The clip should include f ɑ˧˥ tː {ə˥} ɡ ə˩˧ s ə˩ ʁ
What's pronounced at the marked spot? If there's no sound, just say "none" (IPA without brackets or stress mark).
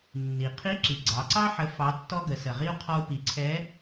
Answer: ɔ˥